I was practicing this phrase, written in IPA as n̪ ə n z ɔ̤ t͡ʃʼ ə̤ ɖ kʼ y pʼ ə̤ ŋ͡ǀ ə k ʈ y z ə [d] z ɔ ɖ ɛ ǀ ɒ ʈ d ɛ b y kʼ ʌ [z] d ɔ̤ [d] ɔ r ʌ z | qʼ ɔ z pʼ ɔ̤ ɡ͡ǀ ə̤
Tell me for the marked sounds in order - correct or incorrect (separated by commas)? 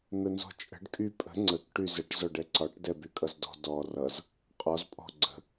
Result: incorrect, correct, correct